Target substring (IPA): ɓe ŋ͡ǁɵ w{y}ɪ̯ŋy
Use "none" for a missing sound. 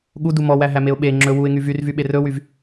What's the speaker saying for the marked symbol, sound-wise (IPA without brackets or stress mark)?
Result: u